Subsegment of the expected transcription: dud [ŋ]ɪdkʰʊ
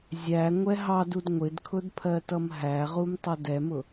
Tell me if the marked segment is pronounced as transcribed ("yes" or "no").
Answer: no